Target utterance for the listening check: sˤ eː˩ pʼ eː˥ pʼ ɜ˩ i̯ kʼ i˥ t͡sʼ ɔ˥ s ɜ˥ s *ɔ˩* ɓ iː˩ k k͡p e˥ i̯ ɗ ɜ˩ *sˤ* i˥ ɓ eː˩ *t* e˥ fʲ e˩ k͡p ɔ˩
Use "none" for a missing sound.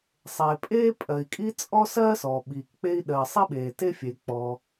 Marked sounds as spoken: ɔ˩, sˤ, t

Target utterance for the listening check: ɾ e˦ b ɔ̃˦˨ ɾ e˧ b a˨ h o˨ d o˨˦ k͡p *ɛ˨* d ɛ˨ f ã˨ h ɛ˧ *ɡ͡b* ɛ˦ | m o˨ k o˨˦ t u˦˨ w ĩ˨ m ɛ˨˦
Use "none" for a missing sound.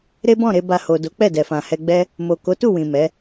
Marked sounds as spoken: ɛ˦˨, ɡ͡b

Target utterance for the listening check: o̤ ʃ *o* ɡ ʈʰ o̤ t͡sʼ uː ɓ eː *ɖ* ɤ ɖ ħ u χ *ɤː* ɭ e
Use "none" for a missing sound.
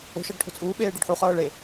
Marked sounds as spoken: ɤ, ɖ, ɤː

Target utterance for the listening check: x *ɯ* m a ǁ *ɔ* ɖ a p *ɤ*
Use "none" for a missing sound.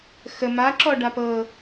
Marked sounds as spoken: ə, ɔ, ɤ

